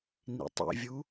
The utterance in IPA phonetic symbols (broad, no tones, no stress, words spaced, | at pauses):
nḭtˤḭvʲu